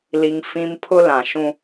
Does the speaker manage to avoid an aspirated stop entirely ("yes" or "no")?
no